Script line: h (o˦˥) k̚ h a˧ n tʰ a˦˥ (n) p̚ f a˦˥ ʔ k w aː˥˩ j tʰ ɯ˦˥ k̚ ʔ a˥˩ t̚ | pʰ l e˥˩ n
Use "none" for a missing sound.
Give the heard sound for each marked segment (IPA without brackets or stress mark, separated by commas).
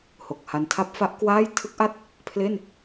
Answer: o˨˩, none